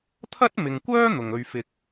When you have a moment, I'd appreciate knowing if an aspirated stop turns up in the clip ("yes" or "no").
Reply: yes